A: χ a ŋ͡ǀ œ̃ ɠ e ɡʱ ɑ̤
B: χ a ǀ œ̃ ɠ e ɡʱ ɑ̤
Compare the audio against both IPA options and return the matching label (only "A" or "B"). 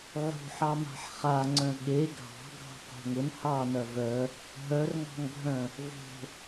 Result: A